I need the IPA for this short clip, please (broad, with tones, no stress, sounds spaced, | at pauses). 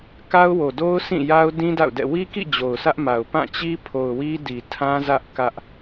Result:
k a˦ ʊ̯ w o˨ d o˦ ʊ̯ s ĩ˦˨ j a˦ ʊ̯ d ĩ˦ d a̰˦˨ ʊ̯ d ɛ̰˦˨ w i˦ k ḭ˦˨ d͡ʑ o˨ ʊ̯ sʰ ä˦ ʔ m a˨ ʊ̯ p ã˦˨ t͡ɕ i˦ pʰ o˨ ʊ̯ w i˦ d i˨ tʰ ã˦ z ä˦ ʔ k ä˦ ʔ